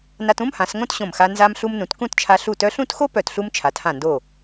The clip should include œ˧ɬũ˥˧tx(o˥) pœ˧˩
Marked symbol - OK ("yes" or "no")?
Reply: yes